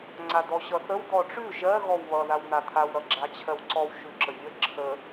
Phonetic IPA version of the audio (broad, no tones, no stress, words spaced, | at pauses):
ŋ͡ǀad̪ɔɕʌθəw d̪ɔʈ͡ʂʉ ʒɜ ɣɔwβʌ ðawn̪at̪ʰaw ɾʌɡ͡ǁat͡ɕʰɜwǀɔw ʃʉǁəvʲə ǁʰə